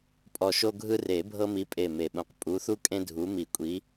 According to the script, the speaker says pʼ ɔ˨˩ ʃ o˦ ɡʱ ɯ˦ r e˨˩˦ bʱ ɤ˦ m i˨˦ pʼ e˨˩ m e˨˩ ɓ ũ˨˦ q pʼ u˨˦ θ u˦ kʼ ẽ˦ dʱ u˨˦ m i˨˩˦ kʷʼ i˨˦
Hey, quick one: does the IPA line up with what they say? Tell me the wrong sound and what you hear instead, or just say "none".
none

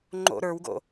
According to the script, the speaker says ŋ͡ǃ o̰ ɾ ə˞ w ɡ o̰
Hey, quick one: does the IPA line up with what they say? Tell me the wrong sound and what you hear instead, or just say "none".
none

